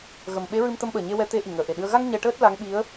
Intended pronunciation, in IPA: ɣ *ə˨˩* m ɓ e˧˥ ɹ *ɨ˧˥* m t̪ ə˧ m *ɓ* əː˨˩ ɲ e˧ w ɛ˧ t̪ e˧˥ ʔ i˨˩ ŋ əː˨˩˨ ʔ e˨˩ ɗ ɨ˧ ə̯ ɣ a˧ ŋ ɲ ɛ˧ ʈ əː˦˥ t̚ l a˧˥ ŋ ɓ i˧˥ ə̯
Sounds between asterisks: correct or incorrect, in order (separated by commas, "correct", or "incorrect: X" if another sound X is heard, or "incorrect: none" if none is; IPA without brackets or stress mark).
correct, incorrect: ɨ˧, correct